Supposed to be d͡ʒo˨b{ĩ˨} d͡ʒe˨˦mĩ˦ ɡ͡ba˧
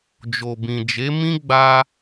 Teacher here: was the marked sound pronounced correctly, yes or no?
yes